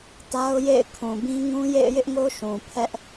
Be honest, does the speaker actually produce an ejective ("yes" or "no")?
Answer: no